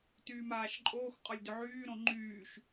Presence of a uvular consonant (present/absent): present